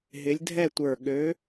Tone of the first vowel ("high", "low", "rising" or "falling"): rising